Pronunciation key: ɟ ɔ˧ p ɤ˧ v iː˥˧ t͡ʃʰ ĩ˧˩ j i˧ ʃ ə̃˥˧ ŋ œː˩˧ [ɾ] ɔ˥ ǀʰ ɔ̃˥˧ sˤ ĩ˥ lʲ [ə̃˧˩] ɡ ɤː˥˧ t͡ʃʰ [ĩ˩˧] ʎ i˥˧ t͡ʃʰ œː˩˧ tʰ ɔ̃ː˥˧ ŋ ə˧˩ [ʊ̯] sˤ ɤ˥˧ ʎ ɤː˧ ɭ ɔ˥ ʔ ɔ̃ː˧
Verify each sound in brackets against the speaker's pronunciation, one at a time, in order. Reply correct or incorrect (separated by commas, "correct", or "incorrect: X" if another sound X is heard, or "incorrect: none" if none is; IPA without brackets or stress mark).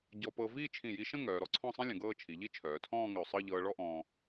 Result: correct, incorrect: ə̃˩˧, incorrect: i˩˧, correct